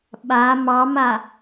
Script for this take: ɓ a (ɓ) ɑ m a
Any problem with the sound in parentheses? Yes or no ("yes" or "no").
yes